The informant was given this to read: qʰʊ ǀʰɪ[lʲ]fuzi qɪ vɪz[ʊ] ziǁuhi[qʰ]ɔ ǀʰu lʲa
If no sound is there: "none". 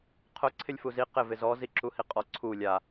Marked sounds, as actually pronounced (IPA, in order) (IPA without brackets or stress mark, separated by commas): lʲ, ɔ, qʼ